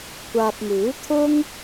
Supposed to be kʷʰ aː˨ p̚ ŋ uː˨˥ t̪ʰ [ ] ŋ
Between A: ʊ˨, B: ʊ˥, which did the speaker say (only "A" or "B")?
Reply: B